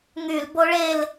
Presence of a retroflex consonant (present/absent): present